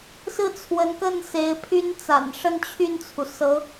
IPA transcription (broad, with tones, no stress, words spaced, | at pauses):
sɹ̩˥˩t͡sʰwə˧˥nkə˥˩n se˧˥ɪ̯pʰy˥nt͡sa̰˨˩n ʂə˥˧nt͡ɕʰy˥˩nt͡sʰu˩ sɤ˧˥